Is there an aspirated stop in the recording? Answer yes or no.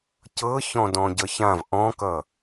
no